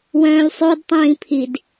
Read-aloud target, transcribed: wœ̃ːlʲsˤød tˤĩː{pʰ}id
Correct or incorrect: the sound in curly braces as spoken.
correct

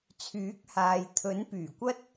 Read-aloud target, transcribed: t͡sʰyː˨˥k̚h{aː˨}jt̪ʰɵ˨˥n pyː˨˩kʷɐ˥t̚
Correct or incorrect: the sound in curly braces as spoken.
correct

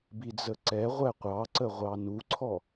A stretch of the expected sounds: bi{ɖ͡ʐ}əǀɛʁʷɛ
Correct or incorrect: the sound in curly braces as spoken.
incorrect: d͡z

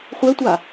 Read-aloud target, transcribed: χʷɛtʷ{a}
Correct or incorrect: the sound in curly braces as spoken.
correct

